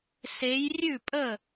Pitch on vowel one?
rising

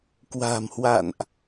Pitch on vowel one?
low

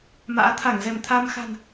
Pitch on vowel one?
rising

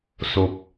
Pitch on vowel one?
low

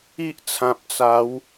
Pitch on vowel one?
high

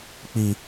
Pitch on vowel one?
low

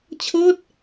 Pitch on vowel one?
falling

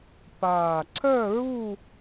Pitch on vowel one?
low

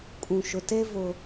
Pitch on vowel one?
low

